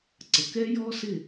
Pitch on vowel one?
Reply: low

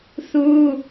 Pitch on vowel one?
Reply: high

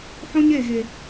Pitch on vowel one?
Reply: high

